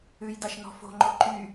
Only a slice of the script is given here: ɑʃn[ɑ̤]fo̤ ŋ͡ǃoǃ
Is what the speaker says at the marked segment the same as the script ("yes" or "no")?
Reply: no